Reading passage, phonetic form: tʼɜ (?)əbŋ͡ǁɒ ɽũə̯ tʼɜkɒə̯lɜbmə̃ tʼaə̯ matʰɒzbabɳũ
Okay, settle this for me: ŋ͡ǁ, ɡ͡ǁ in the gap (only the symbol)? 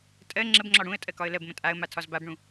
ŋ͡ǁ